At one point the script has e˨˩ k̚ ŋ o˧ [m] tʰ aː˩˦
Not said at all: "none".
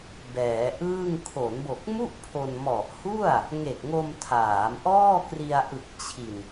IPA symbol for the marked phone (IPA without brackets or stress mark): m